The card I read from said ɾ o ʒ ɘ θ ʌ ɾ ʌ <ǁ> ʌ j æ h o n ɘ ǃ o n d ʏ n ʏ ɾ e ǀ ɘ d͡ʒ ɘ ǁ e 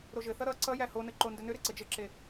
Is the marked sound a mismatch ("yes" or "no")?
yes